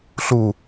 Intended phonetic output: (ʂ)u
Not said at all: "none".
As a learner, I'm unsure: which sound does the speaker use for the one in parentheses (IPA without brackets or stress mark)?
ɬ